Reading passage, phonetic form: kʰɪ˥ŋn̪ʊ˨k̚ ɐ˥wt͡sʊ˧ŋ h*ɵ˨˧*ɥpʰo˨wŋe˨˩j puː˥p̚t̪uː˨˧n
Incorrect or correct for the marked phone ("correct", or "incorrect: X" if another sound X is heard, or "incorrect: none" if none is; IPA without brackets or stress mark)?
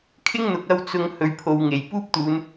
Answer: incorrect: ɵ˨